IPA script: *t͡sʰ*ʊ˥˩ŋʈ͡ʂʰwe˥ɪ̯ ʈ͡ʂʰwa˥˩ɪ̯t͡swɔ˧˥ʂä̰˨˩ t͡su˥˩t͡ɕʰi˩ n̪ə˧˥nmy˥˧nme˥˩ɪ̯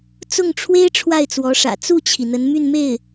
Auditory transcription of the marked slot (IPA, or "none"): t͡s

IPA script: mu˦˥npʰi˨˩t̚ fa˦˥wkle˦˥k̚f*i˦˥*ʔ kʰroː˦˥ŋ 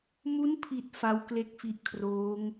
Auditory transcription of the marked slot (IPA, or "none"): i˦˥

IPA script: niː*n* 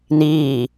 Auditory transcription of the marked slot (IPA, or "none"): none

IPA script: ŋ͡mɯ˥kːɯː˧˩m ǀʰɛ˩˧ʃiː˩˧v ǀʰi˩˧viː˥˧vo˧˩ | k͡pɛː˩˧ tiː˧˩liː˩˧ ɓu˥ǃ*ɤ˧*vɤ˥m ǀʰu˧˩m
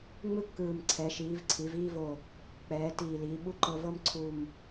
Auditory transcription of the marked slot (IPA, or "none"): ɤ˧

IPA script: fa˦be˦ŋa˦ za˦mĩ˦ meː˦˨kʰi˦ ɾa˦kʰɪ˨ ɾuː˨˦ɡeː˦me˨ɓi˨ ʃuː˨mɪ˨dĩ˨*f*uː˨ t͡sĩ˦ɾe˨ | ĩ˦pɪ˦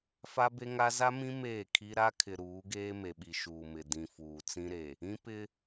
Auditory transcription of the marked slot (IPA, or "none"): f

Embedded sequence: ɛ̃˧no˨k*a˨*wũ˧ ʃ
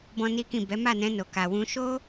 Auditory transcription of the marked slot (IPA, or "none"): a˨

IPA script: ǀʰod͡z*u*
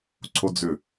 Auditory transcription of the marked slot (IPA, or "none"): ʏ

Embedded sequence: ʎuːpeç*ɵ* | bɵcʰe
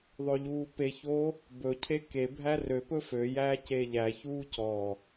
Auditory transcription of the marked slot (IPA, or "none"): o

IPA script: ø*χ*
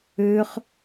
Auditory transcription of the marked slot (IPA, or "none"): χ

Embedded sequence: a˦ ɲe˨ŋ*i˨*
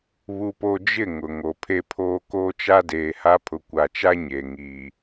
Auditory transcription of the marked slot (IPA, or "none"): i˨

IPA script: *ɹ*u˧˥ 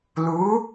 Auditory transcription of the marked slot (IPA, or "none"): l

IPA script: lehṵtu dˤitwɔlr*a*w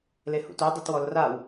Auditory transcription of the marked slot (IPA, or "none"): a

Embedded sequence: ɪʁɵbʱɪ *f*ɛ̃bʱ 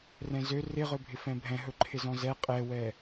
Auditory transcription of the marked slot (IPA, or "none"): f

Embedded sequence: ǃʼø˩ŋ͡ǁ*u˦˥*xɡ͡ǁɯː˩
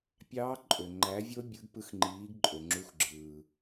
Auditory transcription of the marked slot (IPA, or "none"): u˨˥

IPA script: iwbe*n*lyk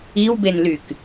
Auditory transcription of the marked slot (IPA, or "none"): n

